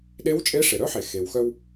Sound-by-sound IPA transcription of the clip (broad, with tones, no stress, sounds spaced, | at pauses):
ɗ e˧˥ w t͡ʃʼ e˧˥ ʂ e˩ ɾ œ˥ ħ e˩ x e˩ w x œ˧ w